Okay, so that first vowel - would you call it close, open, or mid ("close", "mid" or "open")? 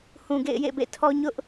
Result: close